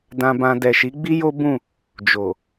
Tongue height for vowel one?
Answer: low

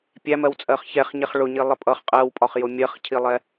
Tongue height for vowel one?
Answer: low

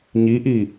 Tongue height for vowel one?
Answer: high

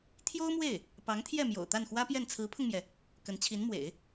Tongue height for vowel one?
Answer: mid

